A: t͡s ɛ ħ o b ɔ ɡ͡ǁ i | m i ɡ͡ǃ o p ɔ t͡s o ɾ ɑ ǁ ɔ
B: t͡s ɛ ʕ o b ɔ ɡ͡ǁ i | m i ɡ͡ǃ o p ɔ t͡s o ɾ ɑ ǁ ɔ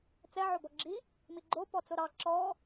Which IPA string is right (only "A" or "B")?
B